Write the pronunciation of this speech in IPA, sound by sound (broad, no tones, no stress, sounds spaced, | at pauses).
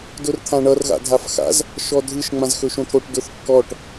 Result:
d ʊ r t̪ʰ ã ɳ ʌ r ɣ a̰ dʱ a f x a̰ z | ʃ ɔ dʱ ɯ ʃ ŋ͡m ã z x ɵ ʃ õ t̪ʰ o ʈ d ʊ θ kː ɔ ʈ